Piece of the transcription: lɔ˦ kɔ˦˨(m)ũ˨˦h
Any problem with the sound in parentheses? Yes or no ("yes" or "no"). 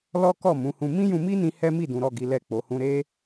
no